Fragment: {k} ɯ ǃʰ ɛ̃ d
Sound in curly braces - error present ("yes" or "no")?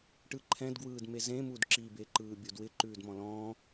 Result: yes